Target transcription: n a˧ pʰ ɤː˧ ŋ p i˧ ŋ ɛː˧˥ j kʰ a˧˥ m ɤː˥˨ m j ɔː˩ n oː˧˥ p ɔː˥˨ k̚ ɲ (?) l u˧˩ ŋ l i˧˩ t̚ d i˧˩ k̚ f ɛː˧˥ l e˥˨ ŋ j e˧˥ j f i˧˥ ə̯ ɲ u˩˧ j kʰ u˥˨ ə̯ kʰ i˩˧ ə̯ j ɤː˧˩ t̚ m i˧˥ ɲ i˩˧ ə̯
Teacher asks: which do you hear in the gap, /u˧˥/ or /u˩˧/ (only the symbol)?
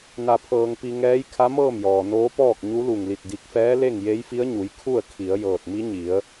u˧˥